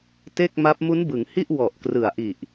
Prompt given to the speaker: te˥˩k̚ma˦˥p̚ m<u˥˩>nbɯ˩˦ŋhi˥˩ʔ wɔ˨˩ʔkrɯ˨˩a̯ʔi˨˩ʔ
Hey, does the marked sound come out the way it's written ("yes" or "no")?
no